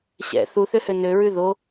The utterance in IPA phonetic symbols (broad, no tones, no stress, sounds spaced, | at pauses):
ɕ ɛ̰ θ u θ ø h ø n ø ɹ ʉ ð o